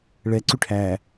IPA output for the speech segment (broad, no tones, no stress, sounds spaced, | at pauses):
ɭ ɛ ǀ y ʈʰ æ